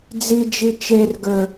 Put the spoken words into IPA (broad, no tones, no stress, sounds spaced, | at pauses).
d͡z i d͡ʒ i t͡ʃ e r ɡ ə˞